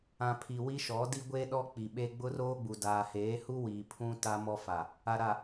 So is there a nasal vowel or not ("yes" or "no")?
yes